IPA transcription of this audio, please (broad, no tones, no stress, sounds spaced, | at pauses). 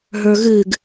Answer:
ɦ ə˞ ɣ ɨ ɡ